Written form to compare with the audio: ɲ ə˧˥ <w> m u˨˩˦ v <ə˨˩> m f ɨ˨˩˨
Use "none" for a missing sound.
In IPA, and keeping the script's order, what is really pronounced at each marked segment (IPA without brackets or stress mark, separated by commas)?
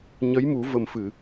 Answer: j, ə˨˩